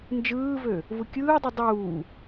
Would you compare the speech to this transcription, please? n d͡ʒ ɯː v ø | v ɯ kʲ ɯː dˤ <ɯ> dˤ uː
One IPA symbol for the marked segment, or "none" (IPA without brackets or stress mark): u